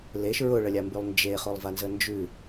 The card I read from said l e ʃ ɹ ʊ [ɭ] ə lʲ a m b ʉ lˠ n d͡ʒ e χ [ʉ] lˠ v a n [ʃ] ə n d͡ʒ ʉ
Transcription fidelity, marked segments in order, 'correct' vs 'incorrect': correct, incorrect, incorrect

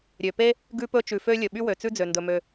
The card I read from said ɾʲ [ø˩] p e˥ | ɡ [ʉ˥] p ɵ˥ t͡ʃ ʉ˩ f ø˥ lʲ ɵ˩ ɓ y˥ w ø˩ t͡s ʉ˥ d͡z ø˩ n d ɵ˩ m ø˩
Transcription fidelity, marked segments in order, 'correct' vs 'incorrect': correct, correct

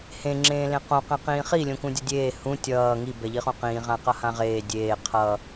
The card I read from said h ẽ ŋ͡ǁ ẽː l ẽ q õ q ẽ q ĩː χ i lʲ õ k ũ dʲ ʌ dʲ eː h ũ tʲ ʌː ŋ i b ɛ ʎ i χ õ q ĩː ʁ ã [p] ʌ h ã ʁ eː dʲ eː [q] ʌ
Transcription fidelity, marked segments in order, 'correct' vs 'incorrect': incorrect, incorrect

